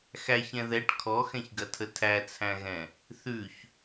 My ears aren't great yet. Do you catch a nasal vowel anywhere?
yes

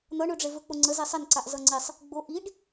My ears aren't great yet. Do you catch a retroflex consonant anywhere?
yes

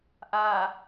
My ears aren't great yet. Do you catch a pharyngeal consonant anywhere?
no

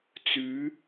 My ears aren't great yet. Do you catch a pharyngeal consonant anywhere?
no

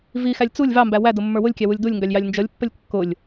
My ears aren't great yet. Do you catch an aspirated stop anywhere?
no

